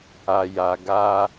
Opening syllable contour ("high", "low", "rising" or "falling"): low